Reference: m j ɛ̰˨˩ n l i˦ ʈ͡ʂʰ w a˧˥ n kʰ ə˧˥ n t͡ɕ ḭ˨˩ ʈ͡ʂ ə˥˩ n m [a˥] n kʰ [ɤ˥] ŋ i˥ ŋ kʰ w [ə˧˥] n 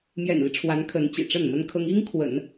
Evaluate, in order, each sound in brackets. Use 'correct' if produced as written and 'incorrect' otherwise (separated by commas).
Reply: incorrect, correct, incorrect